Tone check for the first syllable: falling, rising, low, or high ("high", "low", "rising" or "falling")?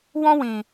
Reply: high